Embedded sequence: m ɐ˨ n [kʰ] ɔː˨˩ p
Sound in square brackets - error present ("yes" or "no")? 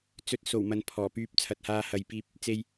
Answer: yes